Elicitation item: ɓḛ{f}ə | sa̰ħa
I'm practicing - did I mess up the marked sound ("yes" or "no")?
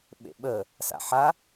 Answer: yes